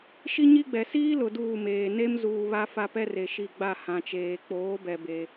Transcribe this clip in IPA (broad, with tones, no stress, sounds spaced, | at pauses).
ʃ i˦ ɲ i˦ ɡ͡b ɛ˨ s iː˦ l ʊ˨ d uː˦˨ m eː˨ n e˦ m z uː˨ β a˦ f a˦ p ɛ˦ r e˨ ʃ i˨ ɡ͡b a˦˨ h ã˨ t͡ʃ eː˨ k͡p oː˨˦ b ɛ˨ b e˦